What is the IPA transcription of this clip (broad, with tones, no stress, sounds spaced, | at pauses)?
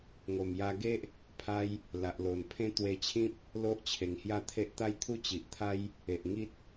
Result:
ŋ o˨˩ m j a˧ ɡ e˦ ʔ | pʰ a˦ j | l a˨ ʔ l o˨˩ n pʰ ẽ˦ t̪ w e˧ t͡ɕʰ ĩ˦ p̚ | l o˦ ʔ t͡ɕʰ e˨˩ ŋ h j a˥˧ t̪ʰ e˦ ʔ t̪ a˦ j t̪ʰ u˥˧ t͡ɕ i˨ ʔ t̪ʰ a˦ j | e˨ ʔ ŋ i˦ t̚